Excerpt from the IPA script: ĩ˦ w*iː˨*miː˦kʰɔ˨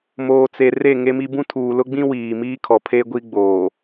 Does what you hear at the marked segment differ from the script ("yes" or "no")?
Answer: no